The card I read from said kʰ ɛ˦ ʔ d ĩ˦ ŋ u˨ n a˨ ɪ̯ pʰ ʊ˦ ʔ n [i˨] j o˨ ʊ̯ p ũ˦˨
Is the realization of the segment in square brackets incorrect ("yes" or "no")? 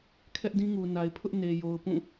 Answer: yes